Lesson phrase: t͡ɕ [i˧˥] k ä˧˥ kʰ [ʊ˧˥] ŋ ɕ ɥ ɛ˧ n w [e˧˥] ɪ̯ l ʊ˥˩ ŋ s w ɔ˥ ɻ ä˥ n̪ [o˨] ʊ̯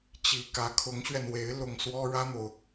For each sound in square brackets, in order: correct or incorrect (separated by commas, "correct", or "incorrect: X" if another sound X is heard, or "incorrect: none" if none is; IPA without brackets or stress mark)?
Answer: correct, correct, correct, correct